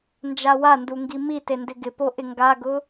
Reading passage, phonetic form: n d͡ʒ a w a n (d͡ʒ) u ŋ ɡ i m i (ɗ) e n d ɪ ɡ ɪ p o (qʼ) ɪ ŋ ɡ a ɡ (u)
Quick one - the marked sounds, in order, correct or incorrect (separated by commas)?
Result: incorrect, incorrect, incorrect, incorrect